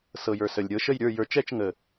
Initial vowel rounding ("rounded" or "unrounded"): unrounded